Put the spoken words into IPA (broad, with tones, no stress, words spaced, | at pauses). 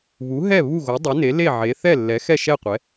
βu˩˥ɦɛ˥˩ βu˥˩ɣo˩˥dˤɛ˩˥ne˩˥ le˥˩ʕe˩˥ θɛ˥˩lːɛ˩˥ xɛ˥˩ʃɛ˥˩qʷɛ˩˥